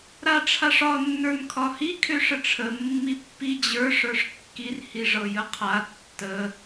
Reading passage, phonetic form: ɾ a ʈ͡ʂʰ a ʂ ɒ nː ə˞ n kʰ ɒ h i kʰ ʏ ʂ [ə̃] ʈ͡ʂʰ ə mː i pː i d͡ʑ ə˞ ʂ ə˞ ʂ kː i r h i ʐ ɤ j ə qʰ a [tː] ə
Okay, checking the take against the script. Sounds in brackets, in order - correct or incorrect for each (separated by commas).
incorrect, correct